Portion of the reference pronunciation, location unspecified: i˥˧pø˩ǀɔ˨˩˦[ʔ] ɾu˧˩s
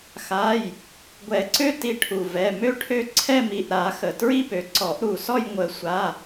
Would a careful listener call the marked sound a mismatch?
no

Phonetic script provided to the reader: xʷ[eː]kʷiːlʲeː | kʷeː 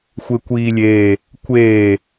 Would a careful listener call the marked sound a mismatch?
yes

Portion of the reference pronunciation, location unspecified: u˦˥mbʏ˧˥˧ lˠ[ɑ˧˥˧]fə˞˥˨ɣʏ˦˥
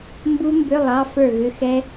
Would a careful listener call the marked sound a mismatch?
no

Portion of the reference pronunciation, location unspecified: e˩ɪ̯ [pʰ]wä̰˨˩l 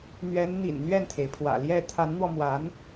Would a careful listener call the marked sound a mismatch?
no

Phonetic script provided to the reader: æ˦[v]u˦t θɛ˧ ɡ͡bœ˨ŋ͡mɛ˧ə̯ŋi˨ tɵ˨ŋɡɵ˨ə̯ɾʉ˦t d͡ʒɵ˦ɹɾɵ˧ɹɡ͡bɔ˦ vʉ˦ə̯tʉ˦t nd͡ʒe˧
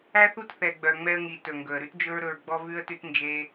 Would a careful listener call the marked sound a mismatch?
yes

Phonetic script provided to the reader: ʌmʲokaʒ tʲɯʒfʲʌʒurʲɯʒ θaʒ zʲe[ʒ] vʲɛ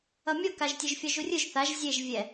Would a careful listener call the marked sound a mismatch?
no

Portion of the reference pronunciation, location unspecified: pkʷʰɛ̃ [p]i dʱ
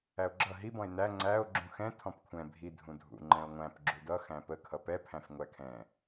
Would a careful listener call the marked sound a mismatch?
yes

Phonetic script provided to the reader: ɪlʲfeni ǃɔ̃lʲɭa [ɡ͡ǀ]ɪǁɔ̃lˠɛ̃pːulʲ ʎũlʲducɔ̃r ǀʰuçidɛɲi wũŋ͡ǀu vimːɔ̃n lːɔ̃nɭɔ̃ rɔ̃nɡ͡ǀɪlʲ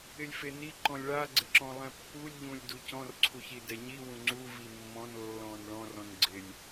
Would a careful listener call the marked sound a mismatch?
no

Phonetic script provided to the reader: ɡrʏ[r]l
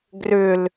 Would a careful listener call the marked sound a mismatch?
yes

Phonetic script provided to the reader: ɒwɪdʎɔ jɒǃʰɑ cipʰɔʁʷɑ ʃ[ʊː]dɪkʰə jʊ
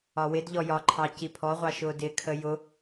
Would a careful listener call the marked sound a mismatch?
no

